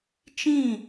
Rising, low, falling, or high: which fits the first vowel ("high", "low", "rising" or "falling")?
falling